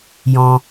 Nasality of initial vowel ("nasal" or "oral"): nasal